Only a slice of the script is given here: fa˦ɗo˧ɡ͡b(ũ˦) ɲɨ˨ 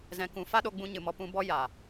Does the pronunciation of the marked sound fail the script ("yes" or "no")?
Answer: yes